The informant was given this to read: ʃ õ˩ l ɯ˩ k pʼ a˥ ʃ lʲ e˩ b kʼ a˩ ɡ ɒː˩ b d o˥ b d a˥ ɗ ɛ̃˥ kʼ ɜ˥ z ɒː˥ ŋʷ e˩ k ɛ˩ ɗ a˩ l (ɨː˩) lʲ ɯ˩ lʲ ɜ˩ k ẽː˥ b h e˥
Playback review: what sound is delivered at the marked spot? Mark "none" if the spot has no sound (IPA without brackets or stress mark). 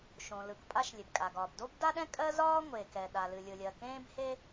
ɨ˩